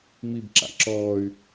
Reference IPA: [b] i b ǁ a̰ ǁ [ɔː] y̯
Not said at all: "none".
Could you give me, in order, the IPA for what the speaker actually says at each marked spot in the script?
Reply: m, ɔː

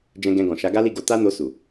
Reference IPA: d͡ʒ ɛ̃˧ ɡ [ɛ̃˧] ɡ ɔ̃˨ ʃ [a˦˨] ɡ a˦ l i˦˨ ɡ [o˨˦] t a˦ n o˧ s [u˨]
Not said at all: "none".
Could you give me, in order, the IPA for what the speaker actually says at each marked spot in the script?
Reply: ɛ̃˧, a˨˦, o˨˦, u˨

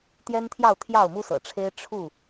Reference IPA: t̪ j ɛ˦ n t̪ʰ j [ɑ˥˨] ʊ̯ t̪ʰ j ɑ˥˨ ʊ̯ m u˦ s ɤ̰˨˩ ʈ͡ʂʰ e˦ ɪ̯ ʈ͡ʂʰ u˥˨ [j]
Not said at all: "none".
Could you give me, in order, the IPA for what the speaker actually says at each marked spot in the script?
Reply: ɑ˥˨, none

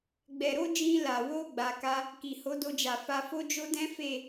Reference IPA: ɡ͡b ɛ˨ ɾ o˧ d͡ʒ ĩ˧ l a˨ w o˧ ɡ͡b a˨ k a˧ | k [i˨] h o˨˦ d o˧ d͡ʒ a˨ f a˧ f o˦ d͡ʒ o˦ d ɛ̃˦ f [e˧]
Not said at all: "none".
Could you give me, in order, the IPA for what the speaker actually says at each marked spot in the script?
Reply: i˨, e˦˨

